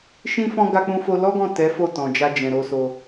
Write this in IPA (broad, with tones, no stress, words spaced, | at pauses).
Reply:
ʃĩ˦fɔ̃˦ ɡa˧k͡pũ˧fo˧ lɔ˦ɡɔ̃˦˨ tɛ˨˦ fo˦˨tɔ̃˨d͡ʒa˧ d͡ʒɛ̃˨ɾo˧so˧